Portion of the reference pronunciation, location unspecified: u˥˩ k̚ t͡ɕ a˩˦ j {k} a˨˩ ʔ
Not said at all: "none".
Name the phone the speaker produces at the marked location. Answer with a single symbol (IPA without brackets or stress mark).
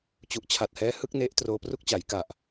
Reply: k